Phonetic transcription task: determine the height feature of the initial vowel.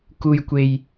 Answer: high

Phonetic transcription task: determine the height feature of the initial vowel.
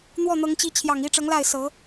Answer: mid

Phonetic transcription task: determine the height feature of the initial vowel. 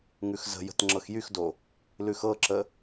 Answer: high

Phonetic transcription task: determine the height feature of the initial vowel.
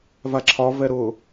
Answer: low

